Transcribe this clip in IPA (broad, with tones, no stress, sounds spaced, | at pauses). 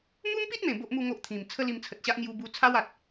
m u˦ m p i˦ t̚ m ẽ˨˩ b o˦ ʔ m u˥˧ ŋ o˦ ʔ t̪ʰ ĩ˨˩ m t͡sʰ ə˦ l i˧ m t͡sʰ ə˨ t̚ ɕ a˦ ʔ ŋ j u˧ b u˧ t͡sʰ a˦ w a˨ t̚